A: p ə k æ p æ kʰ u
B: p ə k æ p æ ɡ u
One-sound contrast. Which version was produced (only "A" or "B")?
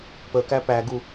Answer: B